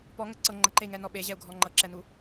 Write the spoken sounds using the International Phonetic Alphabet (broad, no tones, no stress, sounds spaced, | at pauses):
p ɔ ŋ ə ǀ ɤ ŋ͡ǃ ə ǃ e i̯ ŋ ɛ n ɔ ɓ e ʑ ɛ u̯ ɡʱ ɔ ŋ͡ǃ ɤ ǁ ɛ n u